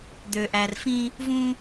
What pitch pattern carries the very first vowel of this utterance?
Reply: low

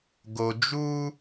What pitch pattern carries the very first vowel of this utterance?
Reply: low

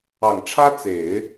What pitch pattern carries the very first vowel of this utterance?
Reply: low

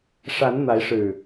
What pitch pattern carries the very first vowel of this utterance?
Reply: rising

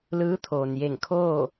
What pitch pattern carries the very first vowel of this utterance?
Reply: rising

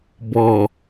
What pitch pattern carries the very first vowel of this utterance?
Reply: low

